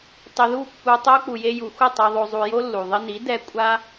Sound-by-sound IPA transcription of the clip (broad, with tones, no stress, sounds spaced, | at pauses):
tˤ ɪ˧ ð u˦˨ pː u˧ tˤ o˧ k͡p u˨ j e˧ j u˨ xʷ ɪ˦˨ tˤ i˨ ðˤ o˨ zˤ u˨ j o˦ lː u˨ ðˤ ɪ˧ n i˨˦ d ɛ˧ kʷʼ a˦